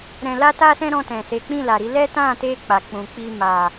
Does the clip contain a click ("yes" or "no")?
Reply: no